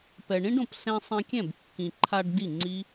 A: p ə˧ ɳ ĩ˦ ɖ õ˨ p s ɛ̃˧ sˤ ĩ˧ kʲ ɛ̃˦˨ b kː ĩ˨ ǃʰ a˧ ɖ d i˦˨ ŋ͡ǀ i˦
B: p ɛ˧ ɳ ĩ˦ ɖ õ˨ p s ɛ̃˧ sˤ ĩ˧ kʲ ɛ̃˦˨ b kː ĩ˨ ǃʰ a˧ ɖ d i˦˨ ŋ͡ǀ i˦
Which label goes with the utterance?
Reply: B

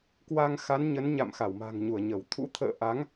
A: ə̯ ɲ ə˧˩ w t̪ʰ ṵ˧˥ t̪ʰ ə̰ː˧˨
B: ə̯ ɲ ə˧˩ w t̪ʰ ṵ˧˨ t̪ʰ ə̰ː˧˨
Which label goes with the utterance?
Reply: A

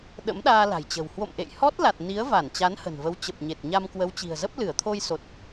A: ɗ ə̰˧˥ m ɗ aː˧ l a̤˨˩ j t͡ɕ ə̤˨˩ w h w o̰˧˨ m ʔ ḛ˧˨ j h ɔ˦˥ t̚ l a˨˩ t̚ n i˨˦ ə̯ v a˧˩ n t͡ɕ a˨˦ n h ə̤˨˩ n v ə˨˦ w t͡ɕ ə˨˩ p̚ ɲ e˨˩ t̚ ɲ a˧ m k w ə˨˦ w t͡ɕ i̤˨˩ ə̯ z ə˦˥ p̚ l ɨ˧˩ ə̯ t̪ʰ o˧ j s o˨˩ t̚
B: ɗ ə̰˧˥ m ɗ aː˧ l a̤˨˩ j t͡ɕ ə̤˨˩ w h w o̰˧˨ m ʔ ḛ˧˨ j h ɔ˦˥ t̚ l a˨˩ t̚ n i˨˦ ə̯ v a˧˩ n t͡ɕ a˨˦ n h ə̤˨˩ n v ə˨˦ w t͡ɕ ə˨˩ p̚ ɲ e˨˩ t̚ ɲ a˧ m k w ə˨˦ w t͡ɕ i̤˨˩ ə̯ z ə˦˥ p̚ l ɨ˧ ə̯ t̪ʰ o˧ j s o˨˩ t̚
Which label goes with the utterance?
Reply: A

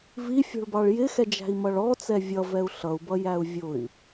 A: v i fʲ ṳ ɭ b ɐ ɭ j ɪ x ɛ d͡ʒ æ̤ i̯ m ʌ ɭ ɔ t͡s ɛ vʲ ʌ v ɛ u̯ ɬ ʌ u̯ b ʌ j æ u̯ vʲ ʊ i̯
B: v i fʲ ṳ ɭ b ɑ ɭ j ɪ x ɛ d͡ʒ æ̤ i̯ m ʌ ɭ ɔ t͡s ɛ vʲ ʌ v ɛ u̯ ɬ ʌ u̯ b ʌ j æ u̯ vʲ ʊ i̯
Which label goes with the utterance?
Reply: B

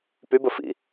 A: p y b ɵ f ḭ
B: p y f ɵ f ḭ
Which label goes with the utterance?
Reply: A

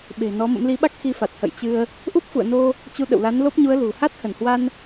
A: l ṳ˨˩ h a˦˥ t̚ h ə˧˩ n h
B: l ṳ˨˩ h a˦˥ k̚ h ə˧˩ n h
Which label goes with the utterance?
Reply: A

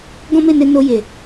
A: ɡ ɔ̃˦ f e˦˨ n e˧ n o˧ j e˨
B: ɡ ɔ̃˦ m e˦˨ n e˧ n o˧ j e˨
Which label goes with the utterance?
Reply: B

